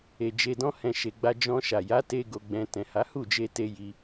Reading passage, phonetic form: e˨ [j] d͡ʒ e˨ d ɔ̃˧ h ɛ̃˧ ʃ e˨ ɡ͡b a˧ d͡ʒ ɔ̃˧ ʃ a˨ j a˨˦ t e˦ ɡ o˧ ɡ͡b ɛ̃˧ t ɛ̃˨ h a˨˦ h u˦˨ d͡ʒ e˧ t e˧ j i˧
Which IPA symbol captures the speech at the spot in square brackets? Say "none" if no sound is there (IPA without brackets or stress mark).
none